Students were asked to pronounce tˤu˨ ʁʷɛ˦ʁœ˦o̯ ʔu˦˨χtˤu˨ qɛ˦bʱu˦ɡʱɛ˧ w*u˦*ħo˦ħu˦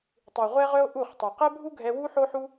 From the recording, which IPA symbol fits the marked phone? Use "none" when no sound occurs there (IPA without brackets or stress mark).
u˦